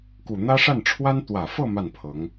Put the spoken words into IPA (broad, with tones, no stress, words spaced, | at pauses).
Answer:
ku˨˩n̪ä˥ʂa˥˩n ʈ͡ʂʰwa˥n t̪wä˨˩fɤ˥˧ ma˥˩npʰɤ˧˥ŋ